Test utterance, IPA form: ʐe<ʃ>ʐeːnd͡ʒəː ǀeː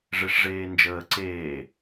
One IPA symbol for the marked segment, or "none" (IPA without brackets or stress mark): ʂ